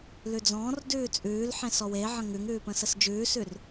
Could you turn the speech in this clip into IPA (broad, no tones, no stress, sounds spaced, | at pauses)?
l ʉ d͡z ɔ̃ː r d ʉː t͡sʼ ʉː l ħ ẽ s ɔ w e ʕ ə̃ ŋ ʉ ŋ ʉː p ə̃ s ə s d͡ʒ ʉː s ʉ r